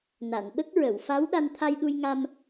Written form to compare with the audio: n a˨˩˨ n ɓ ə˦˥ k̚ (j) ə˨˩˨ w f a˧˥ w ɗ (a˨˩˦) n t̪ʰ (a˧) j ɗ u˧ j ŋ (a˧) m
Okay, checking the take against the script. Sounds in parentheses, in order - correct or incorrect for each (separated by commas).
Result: incorrect, incorrect, correct, correct